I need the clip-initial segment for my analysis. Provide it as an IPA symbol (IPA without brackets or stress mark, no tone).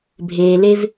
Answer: bʱ